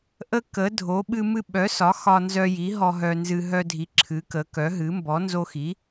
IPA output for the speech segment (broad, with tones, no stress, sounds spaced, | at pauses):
ʔ ə˦ k ə˨˥ dʱ o˨˥ ɓ ɨ˦ m ɨ˦ ɓ œ˨˥ s ɒ˨˥ x ɒ˦ n z œ˦ j i˨˥ ɦ ɔ˦ ɦ œ˦ n z ɨ˦ ɦ œ˦ dʱ i˨˥ ǁʰ ɨ˨˥ k ə˨˥ k œ˨˥ ɦ ɨ˨˥ m b ɔ˨˥ n z o˦ x i˨˥